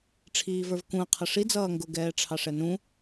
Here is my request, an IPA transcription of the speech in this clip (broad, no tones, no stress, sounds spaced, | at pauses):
ʈ͡ʂʰ iː v ə˞ v k ũ ɐ̯ qʰ ʌ ʂ i d͡z ʌː ŋ ɡ ʊ ɡ ɛː ʈ͡ʂʰ ɑ ʂ ɛ n ũ